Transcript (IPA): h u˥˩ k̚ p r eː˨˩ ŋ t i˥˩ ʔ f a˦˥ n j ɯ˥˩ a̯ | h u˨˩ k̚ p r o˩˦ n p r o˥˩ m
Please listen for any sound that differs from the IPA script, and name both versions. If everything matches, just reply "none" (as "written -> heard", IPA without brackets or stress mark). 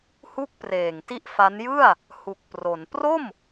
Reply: none